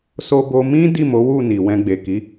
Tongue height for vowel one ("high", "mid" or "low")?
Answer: mid